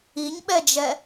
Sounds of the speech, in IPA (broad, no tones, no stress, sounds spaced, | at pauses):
i ɲ ɓ ɛ d͡ʒ ɛ